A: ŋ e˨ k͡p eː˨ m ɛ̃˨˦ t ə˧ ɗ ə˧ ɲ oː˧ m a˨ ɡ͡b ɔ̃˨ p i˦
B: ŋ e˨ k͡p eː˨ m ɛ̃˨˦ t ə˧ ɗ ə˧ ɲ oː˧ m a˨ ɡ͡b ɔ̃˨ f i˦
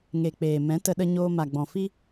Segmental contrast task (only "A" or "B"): B